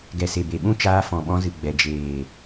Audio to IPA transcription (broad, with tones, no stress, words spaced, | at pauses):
ɡɛ˨se˨be˨ɓũ˦ t͡ʃaː˧fɔ̃˨ ɓɔ̃˧zɨ˨ɡ͡bɛ˨ d͡ʒeː˨